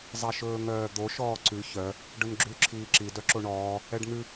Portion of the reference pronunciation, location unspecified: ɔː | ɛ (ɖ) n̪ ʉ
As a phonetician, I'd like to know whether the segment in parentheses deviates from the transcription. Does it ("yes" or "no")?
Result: no